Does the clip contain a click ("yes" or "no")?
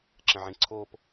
yes